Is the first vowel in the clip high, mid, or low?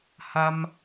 low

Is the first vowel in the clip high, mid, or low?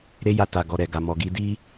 mid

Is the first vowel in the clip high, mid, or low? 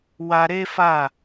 low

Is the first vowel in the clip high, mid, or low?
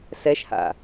mid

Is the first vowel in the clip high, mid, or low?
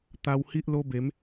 low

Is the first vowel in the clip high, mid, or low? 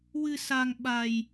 high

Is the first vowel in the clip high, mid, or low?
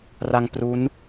low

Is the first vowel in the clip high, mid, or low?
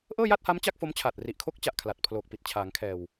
mid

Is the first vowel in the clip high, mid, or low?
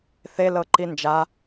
mid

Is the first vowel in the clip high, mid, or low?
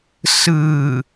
high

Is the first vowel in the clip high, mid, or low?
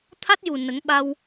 low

